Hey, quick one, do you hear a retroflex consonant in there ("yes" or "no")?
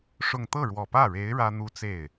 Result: yes